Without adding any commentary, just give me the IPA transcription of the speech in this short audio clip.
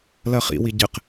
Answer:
lɜχḭwi ɟɪq

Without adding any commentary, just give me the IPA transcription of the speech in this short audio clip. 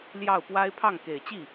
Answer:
ljɑ˥˩ʊ̯pwa˥ɪ̯ pʰɑ˥˩ŋke˨˩ɪ̯t͡ɕi˥˩

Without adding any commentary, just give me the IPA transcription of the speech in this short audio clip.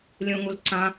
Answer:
lʲũ ŋul ǀã

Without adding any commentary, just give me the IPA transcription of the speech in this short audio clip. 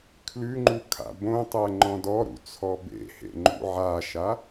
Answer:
kʰlʉŋ͡ǃu kʰa̰bõtˤɜ ŋ͡ǃɔ̃dɔɾṵ t͡sʰɔbḛhḛ ŋ͡ǃṵʕaʃa

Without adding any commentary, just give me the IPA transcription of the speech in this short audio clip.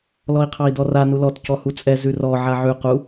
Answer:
lɔi̯qʰɑi̯dɔra nulɔt cɔhut͡sʼɛ zʉrɔ ʕaʕʉ qu

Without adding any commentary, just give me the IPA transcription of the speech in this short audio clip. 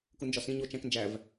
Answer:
kund͡ʒɒsĩɲot͡ʃ æ̃knd͡ʒæv

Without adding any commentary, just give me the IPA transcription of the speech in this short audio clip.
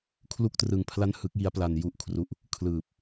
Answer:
kʰlu˥˩k̚trɯ˧ŋpʰla˥˩n hɯ˦˥k̚ji˦˥a̯pla˧n ju˥˩ʔkʰru˦˥ʔ | kʰlɯː˨˩p̚

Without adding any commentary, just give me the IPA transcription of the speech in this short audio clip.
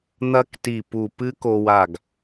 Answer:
n̪ɐ˦˥kti˧˩pu˧˩ pɨ˦˥ko˧wa˧˩ɡ

